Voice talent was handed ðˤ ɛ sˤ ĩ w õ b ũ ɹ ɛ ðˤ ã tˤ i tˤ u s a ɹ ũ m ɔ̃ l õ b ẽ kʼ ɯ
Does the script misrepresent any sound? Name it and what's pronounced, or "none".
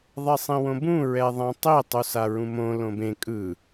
ɔ̃ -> õ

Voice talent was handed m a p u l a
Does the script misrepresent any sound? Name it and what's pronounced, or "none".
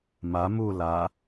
p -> m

